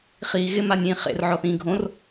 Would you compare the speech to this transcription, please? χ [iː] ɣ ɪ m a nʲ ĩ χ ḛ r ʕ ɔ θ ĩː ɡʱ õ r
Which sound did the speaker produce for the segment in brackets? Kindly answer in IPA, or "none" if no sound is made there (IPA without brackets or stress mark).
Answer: iː